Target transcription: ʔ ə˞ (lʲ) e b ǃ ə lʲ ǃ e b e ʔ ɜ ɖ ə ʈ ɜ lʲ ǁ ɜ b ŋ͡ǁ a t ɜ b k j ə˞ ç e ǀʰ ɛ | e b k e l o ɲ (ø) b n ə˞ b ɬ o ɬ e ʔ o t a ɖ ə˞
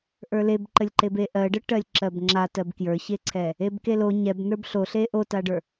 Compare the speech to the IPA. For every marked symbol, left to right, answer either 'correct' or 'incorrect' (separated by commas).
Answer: incorrect, incorrect